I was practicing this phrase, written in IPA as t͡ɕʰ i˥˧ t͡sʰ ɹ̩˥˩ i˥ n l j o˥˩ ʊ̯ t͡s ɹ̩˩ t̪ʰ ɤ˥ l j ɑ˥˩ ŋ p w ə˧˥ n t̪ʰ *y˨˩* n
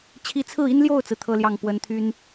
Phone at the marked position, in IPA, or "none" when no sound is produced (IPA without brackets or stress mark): y˥